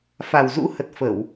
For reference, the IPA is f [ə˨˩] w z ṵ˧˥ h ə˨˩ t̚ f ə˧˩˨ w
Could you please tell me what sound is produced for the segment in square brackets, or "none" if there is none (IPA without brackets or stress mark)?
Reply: a˨˩